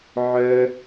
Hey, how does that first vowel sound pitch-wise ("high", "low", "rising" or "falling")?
high